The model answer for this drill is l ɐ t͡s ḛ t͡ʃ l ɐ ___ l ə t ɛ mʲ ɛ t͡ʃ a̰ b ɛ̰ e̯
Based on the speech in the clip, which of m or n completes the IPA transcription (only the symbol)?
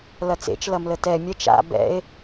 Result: m